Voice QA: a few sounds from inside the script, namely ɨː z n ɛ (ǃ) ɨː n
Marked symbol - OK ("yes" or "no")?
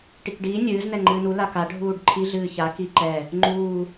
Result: no